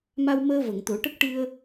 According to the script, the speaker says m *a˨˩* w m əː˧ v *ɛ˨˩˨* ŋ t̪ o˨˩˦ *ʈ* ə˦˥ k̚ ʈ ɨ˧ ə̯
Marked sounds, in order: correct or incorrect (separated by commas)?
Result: incorrect, incorrect, correct